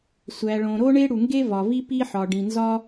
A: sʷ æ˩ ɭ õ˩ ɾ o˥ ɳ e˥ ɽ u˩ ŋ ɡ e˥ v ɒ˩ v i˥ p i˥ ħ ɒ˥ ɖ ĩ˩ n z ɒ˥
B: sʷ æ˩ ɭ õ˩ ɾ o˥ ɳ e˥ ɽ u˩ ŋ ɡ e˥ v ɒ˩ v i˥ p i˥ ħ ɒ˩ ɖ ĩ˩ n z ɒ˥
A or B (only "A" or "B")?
B